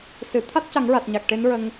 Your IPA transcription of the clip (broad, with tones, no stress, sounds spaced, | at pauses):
s ɨ˨˩˨ t̪ʰ a˦˥ t̚ c a˨˩˦ ŋ ɹ a˨˩ t̚ ɲ a˨˩ k̚ ʈ e˧˥ n ɹ ə˧ ŋ